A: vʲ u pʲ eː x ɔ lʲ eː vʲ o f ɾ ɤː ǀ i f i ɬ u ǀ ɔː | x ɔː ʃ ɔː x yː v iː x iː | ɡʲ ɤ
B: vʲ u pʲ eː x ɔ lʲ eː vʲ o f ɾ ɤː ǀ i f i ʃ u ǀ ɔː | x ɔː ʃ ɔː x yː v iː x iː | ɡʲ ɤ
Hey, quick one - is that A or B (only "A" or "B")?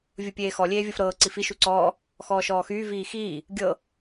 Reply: B